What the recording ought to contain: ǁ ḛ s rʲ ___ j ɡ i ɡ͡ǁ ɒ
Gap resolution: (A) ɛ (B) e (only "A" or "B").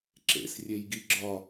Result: B